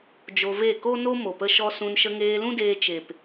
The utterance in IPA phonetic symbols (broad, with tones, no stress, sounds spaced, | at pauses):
d͡ʒ o˧ v e˦˨ k o˦ n o˦ m o˨ p ə˧ ʃ ɔ˧ s ũ˧ n ʃ ə˧ ŋ eː˧ l ũ˦ d eː˧ t͡ʃ e˨ p